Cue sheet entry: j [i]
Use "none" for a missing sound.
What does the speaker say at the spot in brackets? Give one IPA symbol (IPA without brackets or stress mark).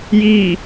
i